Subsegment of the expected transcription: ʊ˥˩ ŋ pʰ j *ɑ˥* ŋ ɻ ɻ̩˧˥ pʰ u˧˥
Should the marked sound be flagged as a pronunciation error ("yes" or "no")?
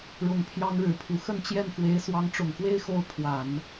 no